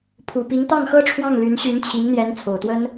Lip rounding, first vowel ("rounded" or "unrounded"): rounded